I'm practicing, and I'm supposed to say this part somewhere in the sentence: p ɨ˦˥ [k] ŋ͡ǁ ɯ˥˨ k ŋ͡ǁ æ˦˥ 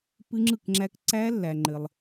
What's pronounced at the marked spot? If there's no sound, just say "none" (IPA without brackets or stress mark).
none